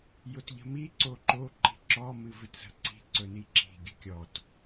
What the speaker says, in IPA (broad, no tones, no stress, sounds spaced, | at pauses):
j ʊ t ʎ ə̤ m i ǀ o ǃ o ǃ i̤ ǁ ɔ m ɨ v ɨ t z ə̤ ǀ i̤ ǀ ɵ n i ǁ i̤ ɡʲ ɵ kʲ ɔ t